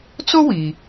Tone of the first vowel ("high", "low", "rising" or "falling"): high